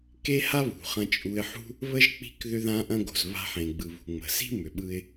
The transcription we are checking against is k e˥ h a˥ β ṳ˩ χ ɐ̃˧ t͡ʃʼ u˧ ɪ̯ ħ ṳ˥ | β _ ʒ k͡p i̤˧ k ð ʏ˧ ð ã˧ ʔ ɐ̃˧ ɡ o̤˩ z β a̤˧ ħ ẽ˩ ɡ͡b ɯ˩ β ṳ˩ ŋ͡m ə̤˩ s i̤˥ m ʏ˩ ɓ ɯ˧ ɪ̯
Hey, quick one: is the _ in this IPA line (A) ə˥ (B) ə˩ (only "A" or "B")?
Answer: A